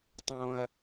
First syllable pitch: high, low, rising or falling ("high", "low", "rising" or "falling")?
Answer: high